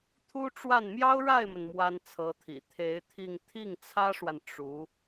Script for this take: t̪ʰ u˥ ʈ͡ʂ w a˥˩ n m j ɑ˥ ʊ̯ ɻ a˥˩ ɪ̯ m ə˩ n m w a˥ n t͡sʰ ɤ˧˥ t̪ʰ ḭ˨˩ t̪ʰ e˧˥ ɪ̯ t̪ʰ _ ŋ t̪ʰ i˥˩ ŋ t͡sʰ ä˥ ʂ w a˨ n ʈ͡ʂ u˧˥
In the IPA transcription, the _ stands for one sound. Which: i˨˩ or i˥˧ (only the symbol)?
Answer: i˥˧